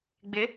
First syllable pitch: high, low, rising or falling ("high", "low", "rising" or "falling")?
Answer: rising